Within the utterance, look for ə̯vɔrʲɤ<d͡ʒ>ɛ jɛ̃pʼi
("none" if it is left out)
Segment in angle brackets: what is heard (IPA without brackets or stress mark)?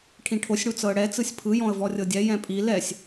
dʲ